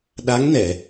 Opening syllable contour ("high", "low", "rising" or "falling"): rising